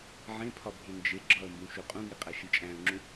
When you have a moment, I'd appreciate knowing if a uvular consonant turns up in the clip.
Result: yes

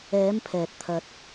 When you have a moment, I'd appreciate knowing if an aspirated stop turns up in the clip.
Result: yes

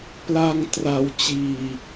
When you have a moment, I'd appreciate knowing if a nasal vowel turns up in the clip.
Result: no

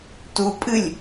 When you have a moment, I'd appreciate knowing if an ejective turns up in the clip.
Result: yes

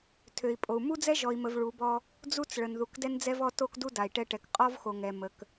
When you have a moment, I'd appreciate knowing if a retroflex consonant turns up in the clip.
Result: yes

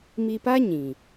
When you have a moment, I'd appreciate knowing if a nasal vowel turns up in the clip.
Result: yes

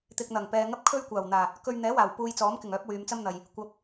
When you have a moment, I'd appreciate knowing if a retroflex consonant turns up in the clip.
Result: no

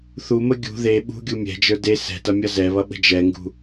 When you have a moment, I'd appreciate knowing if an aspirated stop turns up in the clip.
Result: no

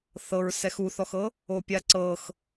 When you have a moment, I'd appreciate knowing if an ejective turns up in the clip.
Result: no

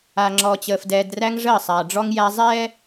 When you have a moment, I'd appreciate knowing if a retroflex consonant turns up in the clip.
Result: yes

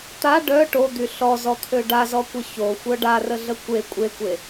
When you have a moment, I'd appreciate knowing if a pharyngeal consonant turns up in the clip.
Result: no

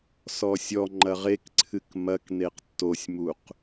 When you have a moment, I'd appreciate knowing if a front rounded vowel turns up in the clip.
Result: no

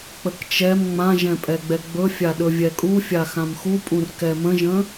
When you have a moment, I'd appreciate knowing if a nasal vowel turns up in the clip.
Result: yes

